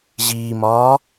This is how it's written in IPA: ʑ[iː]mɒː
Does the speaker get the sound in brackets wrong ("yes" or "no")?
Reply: no